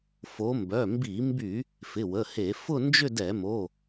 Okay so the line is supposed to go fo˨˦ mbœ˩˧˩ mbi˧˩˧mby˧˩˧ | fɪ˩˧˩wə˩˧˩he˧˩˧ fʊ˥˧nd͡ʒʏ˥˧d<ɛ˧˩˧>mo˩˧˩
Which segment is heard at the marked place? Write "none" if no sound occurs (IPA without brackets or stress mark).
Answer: ɛ˧˩˧